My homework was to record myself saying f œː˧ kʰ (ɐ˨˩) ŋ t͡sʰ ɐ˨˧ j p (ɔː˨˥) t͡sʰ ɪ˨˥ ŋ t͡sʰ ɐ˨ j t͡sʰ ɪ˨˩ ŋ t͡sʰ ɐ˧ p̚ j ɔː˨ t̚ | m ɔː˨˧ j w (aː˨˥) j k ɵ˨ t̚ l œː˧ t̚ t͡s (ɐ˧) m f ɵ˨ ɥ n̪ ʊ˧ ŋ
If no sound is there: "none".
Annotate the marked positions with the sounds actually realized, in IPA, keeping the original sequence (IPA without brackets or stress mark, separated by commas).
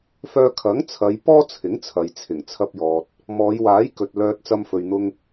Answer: ɐ˨˥, ɔː˥, aː˨˥, ɐ˧